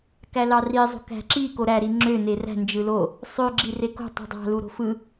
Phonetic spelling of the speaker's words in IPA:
k æ l ɑ r i zˤ o̤ k æ̤ ǁ i k o ɾ æ ɾ i ŋ͡ǁ ø n e r æ̤ n d͡ʒ ɯ l o | sˤ ø ɡ͡ǁ i r e k o̤ tˤ ṳ dˤ ɑ̤ l u ɾ o̤ f ɯ

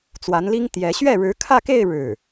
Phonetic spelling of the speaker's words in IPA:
t͡s w a˧˥ n l i˥ ŋ t̪ j ɛ˧˥ ɕ ɥ ɛ˥˩ ɻ ɻ̩˧˥ kʰ ä˥˧ k e˥˧ ɪ̯ ɻ ɻ̩˥˩

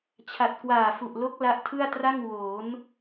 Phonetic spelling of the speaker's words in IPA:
t͡ɕʰ a˨˩ t̚ k w aː˨˩ f u˨˩ ʔ l o˦˥ k̚ l a˦˥ ʔ tʰ ɯ˥˩ a̯ t r a˥˩ ŋ w oː˩˦ n

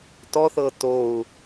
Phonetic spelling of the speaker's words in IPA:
t ɔ θ ɤ t o u̯

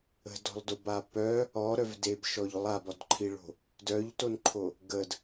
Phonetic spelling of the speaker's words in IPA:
ə̤ d ɔ̤ lˠ d o b a p œ | ɔ ɾ œ v d e b ʃ ɔ ʎ lˠ a b ɔ d ǃʰ i ɭ o̤ | d œ ʎ t o n ǃʰ o | ɡ ə d

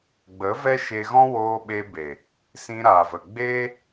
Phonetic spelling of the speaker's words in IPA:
ɡ͡b ə˨˦ v ɛ˦ ʃ e˧ ɣ ɔ̃˦ w oː˧ ɓ e˧ b e˨ | s ĩ˧ ɾ aː˨ v ə˨ ɡ͡b eː˦

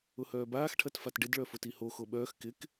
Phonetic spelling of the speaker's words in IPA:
ʊ h œː b aː x ʈʰ ɐ t f a t ɖ ɪ d ɭ œ f ʊ t i h o x o ɓ œː x k ɪ k

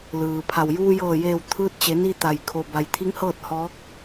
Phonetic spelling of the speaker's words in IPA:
l ɯː˩ pʰ a˩ w j uː˧ j ɤː˧˩ j eː˧˩ w t̪ʰ ɯː˧ t̚ t͡ɕ e˩˧ n i˧ t̪ a˩ j kʰ o˩ b a˩ j t̪ʰ i˧˥ ŋ h ɤː˥˨ t̚ h ɔː˧˥ k̚

